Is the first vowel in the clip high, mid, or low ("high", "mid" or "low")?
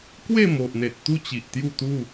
mid